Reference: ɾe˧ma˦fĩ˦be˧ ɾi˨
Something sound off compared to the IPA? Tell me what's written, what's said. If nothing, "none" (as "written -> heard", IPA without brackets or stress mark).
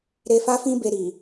m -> f